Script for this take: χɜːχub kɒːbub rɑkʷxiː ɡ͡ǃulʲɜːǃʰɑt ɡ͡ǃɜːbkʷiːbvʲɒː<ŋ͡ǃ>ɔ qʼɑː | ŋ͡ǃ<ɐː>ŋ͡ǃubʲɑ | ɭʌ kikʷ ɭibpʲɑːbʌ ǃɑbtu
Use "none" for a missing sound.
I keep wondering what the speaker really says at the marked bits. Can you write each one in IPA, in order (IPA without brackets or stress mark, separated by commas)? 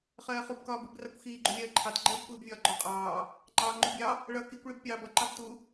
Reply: ɡ͡ǃ, ɑː